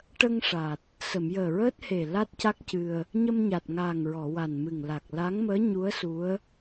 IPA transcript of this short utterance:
ʈ ə˧ ŋ ʂ a˨˩ t̚ | s ə˨˩˨ m j əː˨˩ ɹ əː˦˥ t̚ h e˨˩ l a˦˥ t̚ c a˦˥ k̚ c ɨ˧ ə̯ | ɲ ə˧ m ɲ a˨˩ t̚ ŋ aː˨˩ ŋ ɹ ɔ˨˩˨ w a˨˩ n m ɨ˨˩ ŋ l a˨˩ k̚ l a˧˥ ŋ m əː˧˥ ɲ u˧˥ ə̯ s u˧˥ ə̯

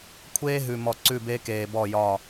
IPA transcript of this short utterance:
kʷʰ eː˦ ɦ ʉ˨ m ɔ˨ ǀ ʉ˦˨ b e˦ k eː˨ b ɔ˦˨ j ɒ˦˨

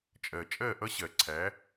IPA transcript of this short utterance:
t͡ʃʼ ɜ˨ t͡ʃʼ ɜ˦˨ ʔ ʌ˦ ɕ ɜ˨ ǀʰ æ˨˦

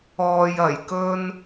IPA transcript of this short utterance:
ɔː˧ j ɐ˨˩ j k ɵ˥ n

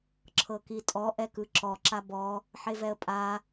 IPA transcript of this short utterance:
ǁʰ ɤ k i tʼ ɔ ʔ ɛ k ɯ ǁ ɔ ǁ a b ɔ | ħ e v ɛ ə̯ pʼ a

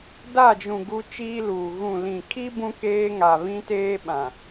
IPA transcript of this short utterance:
d a˦˨ d͡ʒ ũ˨ ɡ u˦ t͡ʃ iː˦ l uː˨ ɣ ũ˨ l ĩ˨ kʰ i˦ b ũ˦ k eː˦ ŋ a˨ β ĩ˦ t eː˦ ɓ ã˨

